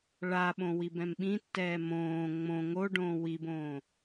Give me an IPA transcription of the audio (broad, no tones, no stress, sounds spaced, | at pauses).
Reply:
ɭ a ɓ õ w i b ɛ̃ m ɓ ĩ tː ɛː m õː ŋ͡m õ ŋ o ɖ õː w i b õː